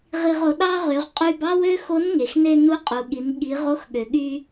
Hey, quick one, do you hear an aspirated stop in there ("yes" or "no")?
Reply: no